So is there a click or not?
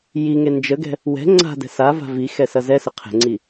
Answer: yes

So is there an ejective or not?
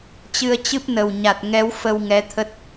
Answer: no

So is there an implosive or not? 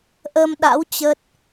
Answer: yes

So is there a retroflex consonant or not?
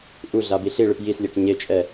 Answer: yes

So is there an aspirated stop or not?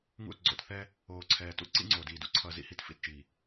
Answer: yes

